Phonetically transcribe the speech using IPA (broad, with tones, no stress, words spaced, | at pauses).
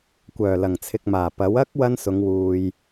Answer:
kʷœː˨˩lɐ˨˩ŋt͡sʰɪ˨k̚maː˨˩ pɐ˨˥w ɐ˥k̚ wɐ˥nsʊ˨˧ŋwuː˨j